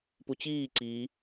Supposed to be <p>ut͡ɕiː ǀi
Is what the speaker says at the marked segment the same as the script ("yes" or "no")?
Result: yes